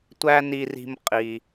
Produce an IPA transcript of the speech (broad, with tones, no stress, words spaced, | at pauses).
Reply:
tʷæ˥ni˧ri̤˧m qʼi˩